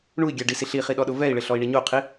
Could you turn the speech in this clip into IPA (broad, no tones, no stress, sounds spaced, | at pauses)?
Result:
ɳ u i̯ ɡʲ a ɖ i s i ɬ i χ i ɗ ɔ ɗ ʊ v ɛ i̯ ɭ ɪ ɬ ɔ i̯ ɳ i ɲ o qʰ i